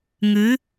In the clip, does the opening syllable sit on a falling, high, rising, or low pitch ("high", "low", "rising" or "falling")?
rising